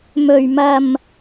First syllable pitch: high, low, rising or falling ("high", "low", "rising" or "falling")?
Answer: low